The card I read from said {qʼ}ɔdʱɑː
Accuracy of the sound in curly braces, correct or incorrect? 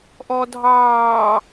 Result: incorrect